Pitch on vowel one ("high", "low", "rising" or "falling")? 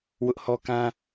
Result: high